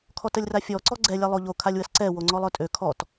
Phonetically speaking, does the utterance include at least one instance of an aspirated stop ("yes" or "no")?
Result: yes